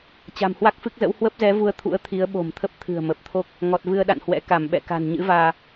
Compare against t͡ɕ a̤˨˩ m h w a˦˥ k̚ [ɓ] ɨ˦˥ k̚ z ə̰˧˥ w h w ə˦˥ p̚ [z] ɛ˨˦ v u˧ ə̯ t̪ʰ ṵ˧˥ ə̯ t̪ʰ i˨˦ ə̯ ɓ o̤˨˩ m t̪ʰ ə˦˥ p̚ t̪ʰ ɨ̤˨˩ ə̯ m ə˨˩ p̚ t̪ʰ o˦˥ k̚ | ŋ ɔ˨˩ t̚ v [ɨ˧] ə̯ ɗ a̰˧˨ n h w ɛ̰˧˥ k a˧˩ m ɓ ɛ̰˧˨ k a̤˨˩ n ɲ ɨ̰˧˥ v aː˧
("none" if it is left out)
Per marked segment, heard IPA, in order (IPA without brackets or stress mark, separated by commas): f, z, ɨ˧